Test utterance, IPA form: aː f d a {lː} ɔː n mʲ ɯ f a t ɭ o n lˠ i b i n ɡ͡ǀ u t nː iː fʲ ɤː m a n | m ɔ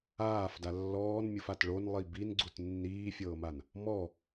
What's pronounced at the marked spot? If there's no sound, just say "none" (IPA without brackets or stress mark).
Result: lː